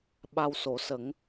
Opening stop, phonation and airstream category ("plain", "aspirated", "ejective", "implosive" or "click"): implosive